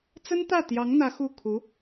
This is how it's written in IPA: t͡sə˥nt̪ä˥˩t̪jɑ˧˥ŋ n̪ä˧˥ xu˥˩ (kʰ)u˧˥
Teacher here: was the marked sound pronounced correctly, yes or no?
yes